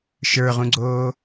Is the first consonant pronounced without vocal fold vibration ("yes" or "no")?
yes